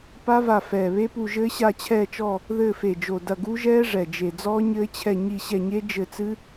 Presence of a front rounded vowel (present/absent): absent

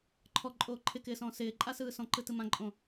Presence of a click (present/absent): present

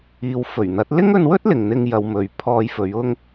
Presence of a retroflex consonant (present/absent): absent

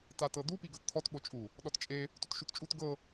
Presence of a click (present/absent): absent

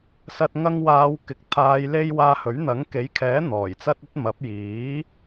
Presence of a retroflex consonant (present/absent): absent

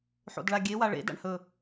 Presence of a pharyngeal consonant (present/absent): present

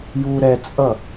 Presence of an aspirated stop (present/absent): absent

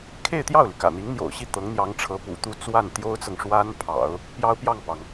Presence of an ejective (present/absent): absent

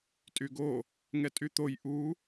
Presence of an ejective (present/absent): present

